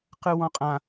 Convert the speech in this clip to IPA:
q ɯ w ɔ̃ qʼ ã

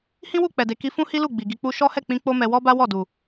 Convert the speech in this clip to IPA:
h ĩ˦ w u˦˨ k͡p ɛ˨ d e˨ k i˧ f ũ˦ h i˦ l u˦˨ ɡ͡b i˨ ɡ i˧ k͡p u˦ ʃ ɔ˦ h ɛ˦˨ k͡p ĩ˧ k͡p o˦ m ɛ˧ w ɔ˦ b a˦ w ɔ˦˨ d u˨

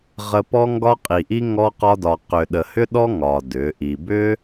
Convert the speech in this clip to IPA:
ʁ ə˧ p ɔ˦ ŋ ɡ ɒ˦ qʼ i˨ ʔ i˦ ŋ ɔ˦ q ɒ˦ d ɒ˧ q ʏ˨ ɗ ə˨ h ʏ˦ ɗ ɔ˦ ŋ ɒ˧ d ʏ˨˦ ʔ i˧ b ʏ˦

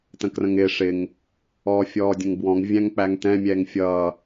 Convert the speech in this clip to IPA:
t ə̃ k r ə̃ ŋ ɪː ʂ ɪ ŋ | ɔː fʲ ɔː dʲ ə̃ ŋ b w ɔ̃ ŋ vʲ æ̃ ŋ k͡p æ ŋ t ɛ̃ mʲ ɛː ŋ fʲ ʌː

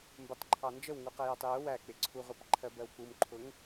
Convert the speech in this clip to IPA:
m b ə tˤ ǃʰ ɑ n d͡ʒ ə w ŋ u q ɜ j ɜ tˤ j ʊ w æ k͡p ɪ ǀʰ u ʁʷ ɜ p ǃʰ ɜ b ɜ w k͡p u m ǃʰ ʊ ŋ

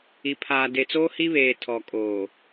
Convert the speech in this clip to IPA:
i˨ pʰ aː˨ d e˨ t͡s oː˦ h i˦ β eː˨ tʰ ɔ˨ kʼ oː˨

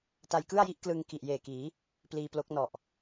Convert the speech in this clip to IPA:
t a˧ j k ɯ˥˩ a̯ j i˥˩ ʔ k l ɯ˧ ŋ k i˨˩ ʔ j eː˨˩ k iː˩˦ | p l iː˧ p l o˦˥ k̚ n ɔ˨˩ ʔ

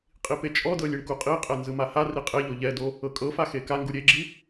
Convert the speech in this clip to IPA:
qʼ i p e t͡ʃʼ ɔ d ɤ lʲ i ɳ k u qʼ i qʼ ɛ n z ɯ m a h a r i qʼ e ʎ o ʎ ɛ d o | ɤ kʼ ɤ f a x e k a ŋ ɡ u ɾʲ e ɡ͡ǁ i

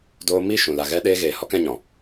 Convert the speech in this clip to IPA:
d oː˧ m i˦˨ ʃ ũ˨ l a˨ ɣ ɛ˧ ɗ eː˧ ɣ eː˨ h ɔ˦ k ɛ̃˧ ɲ ɔ̃˨

